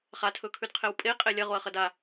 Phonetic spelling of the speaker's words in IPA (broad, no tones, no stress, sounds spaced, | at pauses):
χ a tʰ ɵ kʰ ʉ d qʰ e w pʼ e qʼ e lʲ ɐ ʁ o ɐ̯ χ ɐ d a